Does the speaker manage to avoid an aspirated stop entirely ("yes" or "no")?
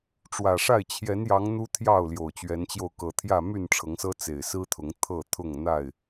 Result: no